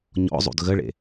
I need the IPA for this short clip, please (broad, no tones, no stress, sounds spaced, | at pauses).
ɲ ɔ̰ zˤ ṵ d ɣ ə ɭ ḛ